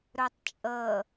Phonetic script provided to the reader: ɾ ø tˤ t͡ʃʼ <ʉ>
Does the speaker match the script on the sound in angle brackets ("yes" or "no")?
no